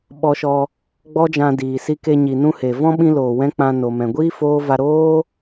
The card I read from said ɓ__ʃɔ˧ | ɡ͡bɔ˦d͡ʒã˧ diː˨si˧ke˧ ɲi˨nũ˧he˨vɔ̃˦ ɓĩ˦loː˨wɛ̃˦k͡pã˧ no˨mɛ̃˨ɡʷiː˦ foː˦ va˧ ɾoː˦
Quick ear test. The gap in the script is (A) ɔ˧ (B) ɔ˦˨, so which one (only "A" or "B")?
A